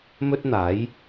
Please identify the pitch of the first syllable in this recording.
high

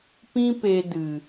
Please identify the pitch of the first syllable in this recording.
high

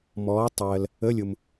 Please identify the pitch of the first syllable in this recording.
rising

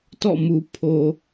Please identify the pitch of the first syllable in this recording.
falling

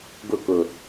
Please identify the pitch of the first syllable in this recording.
falling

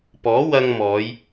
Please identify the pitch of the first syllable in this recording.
rising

